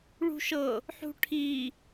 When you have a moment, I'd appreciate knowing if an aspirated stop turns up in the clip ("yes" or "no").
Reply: yes